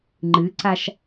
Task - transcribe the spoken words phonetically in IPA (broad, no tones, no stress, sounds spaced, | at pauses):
ŋ͡ǃ ɨ ǀ a ʃ